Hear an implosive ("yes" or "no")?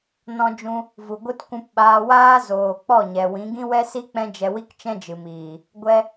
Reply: yes